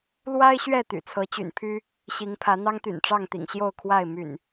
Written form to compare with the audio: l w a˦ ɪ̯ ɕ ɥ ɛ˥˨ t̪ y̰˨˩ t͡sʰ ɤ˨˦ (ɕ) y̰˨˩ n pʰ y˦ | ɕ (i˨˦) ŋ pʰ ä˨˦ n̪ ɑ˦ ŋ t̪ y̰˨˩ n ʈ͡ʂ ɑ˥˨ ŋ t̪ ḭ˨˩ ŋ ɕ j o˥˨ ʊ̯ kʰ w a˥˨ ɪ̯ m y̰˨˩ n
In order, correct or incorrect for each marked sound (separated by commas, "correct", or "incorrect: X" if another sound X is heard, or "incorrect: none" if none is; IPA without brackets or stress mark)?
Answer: incorrect: t͡ɕ, correct